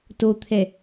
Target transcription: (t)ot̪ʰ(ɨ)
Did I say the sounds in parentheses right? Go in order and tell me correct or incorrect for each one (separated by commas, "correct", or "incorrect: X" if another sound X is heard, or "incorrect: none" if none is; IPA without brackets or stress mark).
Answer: correct, incorrect: ɛ